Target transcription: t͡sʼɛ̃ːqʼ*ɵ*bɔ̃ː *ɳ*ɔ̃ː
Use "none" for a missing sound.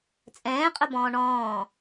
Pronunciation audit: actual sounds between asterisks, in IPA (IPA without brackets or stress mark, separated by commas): ɵ, ɳ